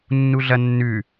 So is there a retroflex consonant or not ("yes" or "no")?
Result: no